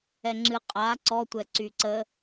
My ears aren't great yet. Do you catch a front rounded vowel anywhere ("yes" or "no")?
yes